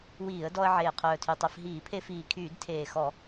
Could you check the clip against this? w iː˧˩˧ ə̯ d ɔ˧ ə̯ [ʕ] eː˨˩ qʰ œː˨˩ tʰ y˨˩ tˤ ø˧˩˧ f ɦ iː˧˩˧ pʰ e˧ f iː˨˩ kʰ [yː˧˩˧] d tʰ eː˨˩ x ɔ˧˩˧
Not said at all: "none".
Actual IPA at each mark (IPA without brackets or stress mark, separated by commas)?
ʕ, yː˧˩˧